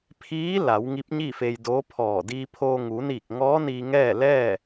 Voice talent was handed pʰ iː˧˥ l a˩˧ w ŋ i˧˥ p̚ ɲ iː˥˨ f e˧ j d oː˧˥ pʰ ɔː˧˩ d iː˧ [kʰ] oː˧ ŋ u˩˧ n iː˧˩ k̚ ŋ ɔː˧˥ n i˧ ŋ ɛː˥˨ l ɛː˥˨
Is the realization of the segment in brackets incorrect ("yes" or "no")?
yes